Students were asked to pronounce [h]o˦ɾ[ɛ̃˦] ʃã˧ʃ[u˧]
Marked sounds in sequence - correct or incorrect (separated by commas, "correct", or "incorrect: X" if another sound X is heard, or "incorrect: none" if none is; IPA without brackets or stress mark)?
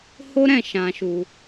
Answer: correct, incorrect: ɛ̃˦˨, correct